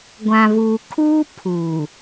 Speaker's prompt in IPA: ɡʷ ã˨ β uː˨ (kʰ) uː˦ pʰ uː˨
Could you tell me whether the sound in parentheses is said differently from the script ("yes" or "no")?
no